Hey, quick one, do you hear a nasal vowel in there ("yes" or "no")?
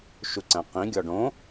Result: yes